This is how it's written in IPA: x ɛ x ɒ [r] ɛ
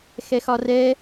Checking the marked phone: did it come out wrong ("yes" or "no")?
no